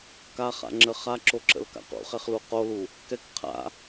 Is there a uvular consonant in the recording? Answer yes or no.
yes